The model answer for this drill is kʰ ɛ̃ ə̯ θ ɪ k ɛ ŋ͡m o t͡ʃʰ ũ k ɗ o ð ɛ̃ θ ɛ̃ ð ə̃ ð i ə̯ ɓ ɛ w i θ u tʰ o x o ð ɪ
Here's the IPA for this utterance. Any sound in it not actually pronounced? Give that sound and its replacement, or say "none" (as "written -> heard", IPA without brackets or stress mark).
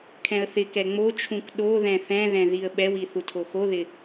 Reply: ə̃ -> ɛ̃